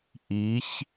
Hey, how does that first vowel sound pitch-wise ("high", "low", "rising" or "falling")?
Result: rising